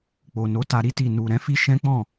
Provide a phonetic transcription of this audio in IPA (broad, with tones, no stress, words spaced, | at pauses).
k͡po˨ no˨˦ta˧ ɾi˦ti˦˨ nu˨ ɾɛ̃˨˦fi˦ ʃɛ̃˦ k͡pɔ̃˦˨